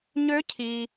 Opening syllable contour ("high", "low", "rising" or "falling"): rising